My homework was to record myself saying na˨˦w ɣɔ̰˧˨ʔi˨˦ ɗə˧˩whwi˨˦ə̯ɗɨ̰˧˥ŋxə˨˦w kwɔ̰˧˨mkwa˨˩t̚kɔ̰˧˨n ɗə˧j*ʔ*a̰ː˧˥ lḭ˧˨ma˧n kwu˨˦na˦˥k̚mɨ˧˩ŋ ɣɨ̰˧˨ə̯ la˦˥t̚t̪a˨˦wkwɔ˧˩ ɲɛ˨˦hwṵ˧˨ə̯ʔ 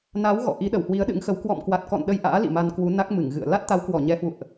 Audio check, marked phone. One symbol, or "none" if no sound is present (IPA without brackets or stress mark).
ʔ